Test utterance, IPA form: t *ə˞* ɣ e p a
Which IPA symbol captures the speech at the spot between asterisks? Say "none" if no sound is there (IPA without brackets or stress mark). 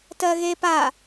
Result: ɜ